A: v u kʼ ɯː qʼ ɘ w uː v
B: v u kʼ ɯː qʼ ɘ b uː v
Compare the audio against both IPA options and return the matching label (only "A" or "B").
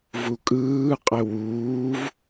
A